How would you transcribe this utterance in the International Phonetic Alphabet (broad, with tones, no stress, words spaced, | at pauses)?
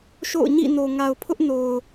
ʃo̰˦˨ʊ̯ɲḭ˦˨no˨ ŋa˨ʊ̯pʰʊ˦ʔno˨ʊ̯